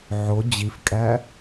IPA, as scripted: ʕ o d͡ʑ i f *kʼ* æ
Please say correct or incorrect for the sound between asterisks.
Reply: correct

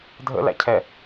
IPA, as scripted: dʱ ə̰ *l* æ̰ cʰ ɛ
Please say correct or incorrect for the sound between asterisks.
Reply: correct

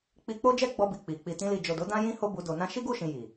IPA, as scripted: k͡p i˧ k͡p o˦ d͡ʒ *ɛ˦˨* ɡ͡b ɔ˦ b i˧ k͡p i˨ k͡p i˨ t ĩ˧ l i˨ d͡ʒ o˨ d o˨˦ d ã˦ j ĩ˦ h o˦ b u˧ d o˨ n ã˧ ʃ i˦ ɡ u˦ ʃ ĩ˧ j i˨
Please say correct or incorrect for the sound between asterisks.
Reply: incorrect: ɛ˦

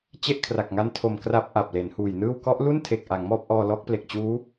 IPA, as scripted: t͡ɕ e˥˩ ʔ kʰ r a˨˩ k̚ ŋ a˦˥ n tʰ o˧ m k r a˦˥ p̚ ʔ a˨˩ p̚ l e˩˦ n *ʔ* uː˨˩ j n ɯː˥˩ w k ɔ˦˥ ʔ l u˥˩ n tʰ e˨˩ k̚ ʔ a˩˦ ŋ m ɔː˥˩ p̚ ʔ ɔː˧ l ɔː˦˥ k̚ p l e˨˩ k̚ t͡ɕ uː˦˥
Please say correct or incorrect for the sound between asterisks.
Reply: incorrect: h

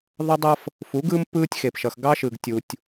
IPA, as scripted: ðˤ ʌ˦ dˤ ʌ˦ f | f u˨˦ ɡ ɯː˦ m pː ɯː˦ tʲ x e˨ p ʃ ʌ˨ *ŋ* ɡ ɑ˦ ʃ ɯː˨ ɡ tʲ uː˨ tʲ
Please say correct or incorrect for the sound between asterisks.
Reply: incorrect: x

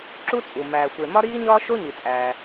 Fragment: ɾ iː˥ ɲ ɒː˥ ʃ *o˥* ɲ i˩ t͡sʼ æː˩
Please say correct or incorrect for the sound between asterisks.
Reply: correct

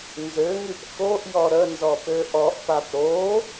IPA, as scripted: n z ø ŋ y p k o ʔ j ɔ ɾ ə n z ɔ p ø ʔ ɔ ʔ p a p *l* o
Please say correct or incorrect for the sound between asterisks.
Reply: incorrect: ɾ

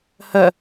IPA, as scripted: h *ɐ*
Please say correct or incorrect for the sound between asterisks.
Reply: correct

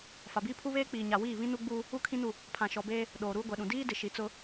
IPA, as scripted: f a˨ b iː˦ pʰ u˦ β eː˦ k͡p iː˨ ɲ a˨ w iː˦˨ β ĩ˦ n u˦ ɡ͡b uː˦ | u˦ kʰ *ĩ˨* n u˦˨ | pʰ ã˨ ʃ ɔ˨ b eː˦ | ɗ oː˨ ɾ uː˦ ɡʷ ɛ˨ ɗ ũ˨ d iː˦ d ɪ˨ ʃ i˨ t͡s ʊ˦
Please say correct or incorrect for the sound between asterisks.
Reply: incorrect: ĩ˦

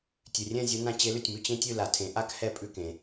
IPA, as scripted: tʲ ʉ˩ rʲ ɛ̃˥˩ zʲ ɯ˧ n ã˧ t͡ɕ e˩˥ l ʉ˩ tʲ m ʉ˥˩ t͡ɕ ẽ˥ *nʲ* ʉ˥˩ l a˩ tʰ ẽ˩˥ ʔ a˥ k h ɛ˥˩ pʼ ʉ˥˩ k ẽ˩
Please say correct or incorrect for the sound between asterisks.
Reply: incorrect: tʲ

